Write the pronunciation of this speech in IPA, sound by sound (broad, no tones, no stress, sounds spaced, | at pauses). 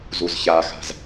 z u z ç a x a̤ z